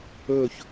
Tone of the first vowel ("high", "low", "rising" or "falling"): falling